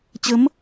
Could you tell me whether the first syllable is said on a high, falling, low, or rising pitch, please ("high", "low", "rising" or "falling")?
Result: rising